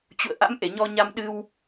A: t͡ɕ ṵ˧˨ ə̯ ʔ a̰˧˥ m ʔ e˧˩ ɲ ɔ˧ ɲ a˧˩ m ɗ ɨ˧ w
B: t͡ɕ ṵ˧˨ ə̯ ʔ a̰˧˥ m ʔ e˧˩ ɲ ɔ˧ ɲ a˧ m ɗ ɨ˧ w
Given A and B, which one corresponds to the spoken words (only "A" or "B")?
B